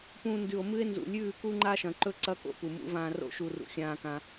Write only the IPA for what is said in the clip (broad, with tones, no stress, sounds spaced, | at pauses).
p ũː˧ n d ʉ˨ o̯ m ɨ˦ e̯ n z ṵ˨ lʲ ʉː˦˨ k u˦ ŋ͡ǃ a˦ ʃ ɐ̃˨ ǃ ɵ˦ ǀ ɐ˦ k o̰˦ p u˨ m ṵ˦ v ãː˧ r o̰˦ ʃ u˨ r ṵ˨ xʲ ãː˧ k ã˧